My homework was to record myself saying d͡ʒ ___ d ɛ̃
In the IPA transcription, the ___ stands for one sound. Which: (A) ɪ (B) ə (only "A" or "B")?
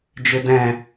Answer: A